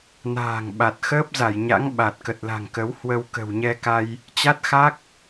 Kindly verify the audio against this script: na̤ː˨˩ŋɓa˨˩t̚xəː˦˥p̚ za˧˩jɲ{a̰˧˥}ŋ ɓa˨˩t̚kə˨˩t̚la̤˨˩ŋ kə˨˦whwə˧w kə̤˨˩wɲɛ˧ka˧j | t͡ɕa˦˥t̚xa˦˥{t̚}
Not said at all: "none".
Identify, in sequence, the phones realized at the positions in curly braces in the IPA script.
a̰˧˥, k̚

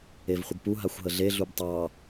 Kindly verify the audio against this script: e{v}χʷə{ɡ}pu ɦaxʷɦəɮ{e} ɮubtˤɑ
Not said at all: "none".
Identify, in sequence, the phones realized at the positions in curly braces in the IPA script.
v, ɡ, e

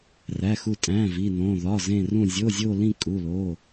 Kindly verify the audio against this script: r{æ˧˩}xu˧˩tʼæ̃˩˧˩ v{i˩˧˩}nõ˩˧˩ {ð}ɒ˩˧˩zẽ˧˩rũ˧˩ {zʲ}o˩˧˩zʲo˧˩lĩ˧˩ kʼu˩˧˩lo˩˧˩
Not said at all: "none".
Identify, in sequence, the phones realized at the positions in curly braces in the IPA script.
æ˩˧˩, i˩˧˩, ð, zʲ

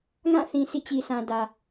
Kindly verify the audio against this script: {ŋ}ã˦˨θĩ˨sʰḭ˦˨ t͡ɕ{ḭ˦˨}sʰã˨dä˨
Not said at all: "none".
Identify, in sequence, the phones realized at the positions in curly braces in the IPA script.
ŋ, i˨

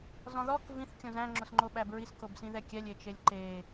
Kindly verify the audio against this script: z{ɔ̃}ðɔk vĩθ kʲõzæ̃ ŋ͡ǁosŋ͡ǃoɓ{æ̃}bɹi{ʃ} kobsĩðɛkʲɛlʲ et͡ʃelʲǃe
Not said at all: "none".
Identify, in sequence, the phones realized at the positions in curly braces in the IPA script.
ɔ̃, æ, s

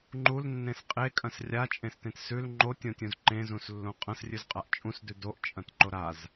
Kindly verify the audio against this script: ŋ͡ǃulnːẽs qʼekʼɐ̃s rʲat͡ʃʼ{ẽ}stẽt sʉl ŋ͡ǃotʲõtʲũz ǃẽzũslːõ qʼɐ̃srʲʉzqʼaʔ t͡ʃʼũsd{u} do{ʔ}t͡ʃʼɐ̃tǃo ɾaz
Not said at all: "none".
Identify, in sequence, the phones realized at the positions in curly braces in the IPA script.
ẽ, ʉ, ʔ

